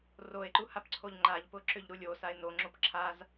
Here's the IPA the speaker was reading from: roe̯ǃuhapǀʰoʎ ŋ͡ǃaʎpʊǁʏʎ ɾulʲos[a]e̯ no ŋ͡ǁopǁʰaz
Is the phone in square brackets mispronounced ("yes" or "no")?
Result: no